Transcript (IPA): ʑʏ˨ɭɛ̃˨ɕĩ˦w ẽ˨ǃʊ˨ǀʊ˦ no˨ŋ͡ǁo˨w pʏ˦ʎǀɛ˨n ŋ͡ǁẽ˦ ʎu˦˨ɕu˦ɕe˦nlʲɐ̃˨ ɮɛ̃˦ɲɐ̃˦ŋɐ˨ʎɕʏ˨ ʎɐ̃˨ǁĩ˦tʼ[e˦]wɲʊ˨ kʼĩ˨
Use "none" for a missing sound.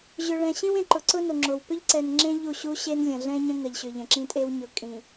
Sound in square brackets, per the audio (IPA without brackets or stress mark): e˦